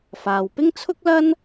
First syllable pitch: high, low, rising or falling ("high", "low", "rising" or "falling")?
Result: low